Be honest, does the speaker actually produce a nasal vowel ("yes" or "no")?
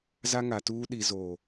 no